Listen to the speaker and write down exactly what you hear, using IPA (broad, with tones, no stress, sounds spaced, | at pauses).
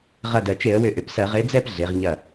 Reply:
ʁ ɐ˧˩ d ɜ˩ t͡ʃ e˧˩˧ ə̯ w ʏ˧˩˧ ʔ ʏ˩˧ p s ɜ˧˩˧ ʁ e˨˥ d͡z ɛ˥˨ p ɮ e˩˧ ʁ ɲ ɐ˧˩